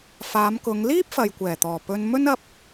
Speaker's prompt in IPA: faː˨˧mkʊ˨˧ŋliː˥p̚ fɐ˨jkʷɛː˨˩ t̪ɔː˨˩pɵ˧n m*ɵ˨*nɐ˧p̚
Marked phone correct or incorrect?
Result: incorrect: ɵ˥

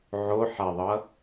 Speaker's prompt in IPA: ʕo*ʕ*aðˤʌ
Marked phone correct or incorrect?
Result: incorrect: ħ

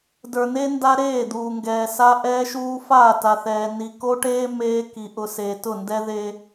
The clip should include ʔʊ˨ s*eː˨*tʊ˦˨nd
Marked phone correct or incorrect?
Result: correct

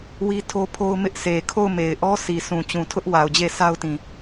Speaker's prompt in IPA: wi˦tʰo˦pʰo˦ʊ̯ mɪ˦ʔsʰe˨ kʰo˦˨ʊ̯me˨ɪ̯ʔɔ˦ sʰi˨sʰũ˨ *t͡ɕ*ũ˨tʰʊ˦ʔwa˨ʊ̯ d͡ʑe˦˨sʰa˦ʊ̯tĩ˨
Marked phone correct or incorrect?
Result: correct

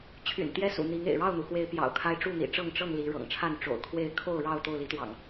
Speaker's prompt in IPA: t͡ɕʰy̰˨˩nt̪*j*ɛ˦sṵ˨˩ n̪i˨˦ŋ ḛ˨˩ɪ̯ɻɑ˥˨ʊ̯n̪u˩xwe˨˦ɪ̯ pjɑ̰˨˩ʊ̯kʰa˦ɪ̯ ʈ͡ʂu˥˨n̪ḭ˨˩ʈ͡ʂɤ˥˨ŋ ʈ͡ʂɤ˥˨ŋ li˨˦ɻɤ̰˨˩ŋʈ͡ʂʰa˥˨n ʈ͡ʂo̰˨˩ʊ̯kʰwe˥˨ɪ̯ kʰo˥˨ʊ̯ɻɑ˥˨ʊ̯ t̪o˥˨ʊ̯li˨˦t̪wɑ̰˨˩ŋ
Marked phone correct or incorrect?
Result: correct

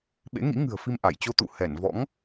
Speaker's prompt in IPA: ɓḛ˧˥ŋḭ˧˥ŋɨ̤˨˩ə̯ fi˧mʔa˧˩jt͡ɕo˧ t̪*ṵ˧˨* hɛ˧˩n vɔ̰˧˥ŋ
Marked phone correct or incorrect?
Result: correct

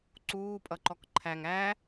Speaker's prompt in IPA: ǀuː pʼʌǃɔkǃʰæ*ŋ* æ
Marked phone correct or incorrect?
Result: correct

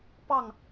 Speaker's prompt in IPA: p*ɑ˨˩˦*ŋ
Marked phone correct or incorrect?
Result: incorrect: ɑ˥˩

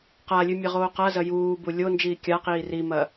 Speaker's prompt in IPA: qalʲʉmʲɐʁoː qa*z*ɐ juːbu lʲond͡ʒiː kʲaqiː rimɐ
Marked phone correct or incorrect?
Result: correct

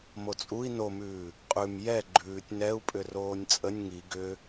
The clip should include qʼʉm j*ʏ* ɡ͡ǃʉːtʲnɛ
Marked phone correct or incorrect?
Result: incorrect: ɛ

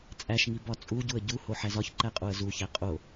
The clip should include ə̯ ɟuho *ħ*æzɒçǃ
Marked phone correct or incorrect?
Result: correct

